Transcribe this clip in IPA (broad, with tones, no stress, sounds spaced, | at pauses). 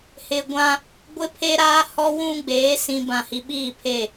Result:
h ɪ˨ ɡʷ ã˦ | ɡʷ ɪ˦ pʰ e˦ ɾ aː˦ h ɔ˦ w ũ˦ ɡ͡b eː˨˦ s ĩ˨ b ã˨ h i˨ ɓ iː˦˨ pʰ e˦˨